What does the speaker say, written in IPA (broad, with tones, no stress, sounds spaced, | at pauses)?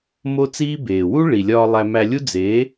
m o˦ t͡s iː˦ b eː˨ w u˦ ɭ i˨ lʲ ɒː˧ lˠ æ˧ m æ˧ lʲ u˦ d͡z eː˨˦